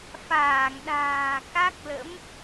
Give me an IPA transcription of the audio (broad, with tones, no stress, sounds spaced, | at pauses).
f aː˧˩ ŋ ɗ a̤ː˨˩ k a˦˥ k̚ l ə̰˧˥ m